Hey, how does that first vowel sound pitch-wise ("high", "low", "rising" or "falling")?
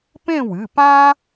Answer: falling